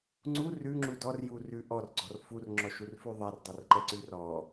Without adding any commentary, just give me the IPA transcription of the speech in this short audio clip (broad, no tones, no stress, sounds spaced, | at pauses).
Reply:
ŋ͡ǀ u r ʉ ŋ͡ǁ u d ɔ r j u r ʉ ʔ ɔ r ɡ͡ǀ ɔ r f u r ŋ͡ǁ ɔ ʃ u r f ʉ ðˤ ɛ r dˤ ɛ r ǃ ɛ ǀ ʉ r ɔ